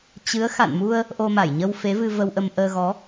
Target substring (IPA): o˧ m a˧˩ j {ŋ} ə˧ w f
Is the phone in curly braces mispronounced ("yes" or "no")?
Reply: yes